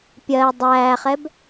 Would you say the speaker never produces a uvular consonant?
no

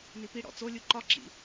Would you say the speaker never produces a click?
no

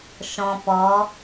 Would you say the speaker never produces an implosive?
yes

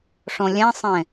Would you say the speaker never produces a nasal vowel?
no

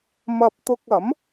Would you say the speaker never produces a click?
yes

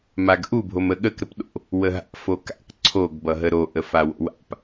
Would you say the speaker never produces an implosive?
no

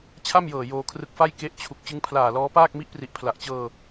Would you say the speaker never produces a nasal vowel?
yes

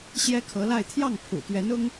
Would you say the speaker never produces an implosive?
yes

